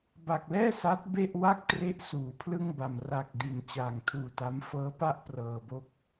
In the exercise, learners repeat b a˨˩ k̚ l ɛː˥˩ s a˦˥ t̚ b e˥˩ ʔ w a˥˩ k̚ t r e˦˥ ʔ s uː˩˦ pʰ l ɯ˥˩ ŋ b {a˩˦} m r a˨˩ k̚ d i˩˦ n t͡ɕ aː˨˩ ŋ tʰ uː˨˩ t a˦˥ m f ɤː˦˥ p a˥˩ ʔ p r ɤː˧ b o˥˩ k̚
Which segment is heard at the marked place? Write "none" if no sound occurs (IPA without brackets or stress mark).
a˨˩